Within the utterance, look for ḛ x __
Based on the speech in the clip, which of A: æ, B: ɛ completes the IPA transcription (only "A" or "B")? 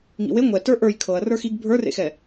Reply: B